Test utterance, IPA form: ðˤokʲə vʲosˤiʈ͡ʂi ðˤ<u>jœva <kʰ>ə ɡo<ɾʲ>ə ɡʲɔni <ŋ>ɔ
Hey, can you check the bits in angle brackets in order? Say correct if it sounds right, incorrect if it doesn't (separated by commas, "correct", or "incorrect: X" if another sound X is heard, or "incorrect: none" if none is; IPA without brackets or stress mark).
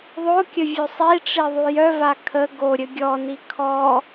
correct, correct, correct, incorrect: kʰ